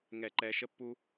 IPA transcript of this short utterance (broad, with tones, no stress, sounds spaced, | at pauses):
ŋ ɛ˦˨ ǃ ɛ˦ ʃ ə˦ pː u˦